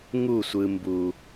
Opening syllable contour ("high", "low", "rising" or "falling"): falling